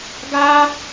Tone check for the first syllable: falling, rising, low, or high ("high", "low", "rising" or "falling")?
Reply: high